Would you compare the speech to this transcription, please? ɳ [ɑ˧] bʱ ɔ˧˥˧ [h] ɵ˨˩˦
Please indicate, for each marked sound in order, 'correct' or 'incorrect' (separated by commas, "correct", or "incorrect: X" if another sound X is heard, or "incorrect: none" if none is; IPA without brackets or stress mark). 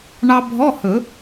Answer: correct, correct